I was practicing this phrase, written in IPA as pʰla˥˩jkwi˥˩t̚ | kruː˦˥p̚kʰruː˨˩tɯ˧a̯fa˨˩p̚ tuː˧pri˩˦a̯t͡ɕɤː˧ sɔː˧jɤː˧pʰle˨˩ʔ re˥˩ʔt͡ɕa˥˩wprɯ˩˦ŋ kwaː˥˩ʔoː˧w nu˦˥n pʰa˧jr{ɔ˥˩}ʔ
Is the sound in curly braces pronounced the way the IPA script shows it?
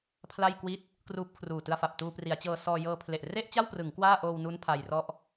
yes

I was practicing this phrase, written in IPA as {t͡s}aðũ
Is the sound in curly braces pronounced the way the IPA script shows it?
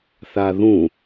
no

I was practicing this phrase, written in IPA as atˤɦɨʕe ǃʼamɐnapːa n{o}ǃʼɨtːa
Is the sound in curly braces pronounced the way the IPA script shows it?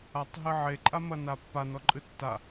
no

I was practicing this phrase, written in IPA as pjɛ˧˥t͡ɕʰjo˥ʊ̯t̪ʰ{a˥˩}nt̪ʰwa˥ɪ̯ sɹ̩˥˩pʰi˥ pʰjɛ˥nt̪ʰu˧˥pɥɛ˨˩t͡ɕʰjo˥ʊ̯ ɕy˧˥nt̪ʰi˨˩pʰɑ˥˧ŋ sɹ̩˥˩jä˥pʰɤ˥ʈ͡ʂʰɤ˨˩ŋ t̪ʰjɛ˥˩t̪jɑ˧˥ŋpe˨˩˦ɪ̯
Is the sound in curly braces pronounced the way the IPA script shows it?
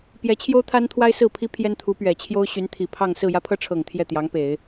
no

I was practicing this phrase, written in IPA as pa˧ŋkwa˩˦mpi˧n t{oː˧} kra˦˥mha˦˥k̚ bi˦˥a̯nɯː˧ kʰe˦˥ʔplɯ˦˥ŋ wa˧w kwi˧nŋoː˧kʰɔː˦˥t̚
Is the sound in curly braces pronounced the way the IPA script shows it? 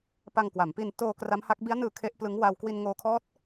yes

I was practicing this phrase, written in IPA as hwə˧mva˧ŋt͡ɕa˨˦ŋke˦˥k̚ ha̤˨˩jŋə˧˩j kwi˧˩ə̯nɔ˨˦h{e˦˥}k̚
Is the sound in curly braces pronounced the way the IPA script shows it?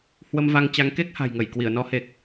no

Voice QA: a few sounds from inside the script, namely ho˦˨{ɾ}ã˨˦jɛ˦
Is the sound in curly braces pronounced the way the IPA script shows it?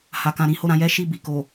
yes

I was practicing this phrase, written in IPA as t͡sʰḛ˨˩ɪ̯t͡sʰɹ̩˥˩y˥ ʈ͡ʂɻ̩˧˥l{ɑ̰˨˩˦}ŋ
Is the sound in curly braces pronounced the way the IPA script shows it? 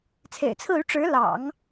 yes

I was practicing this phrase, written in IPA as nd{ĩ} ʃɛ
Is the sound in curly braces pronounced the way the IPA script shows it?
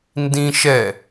yes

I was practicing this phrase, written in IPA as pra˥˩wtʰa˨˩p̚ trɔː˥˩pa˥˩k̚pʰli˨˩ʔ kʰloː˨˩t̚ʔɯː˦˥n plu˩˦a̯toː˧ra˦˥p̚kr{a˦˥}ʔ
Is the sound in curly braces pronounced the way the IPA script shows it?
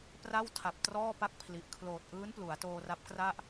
no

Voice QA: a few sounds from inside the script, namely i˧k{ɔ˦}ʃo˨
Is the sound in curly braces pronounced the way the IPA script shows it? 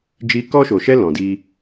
yes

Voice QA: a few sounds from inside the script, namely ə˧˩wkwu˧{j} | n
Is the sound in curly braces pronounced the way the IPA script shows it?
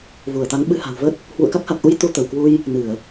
yes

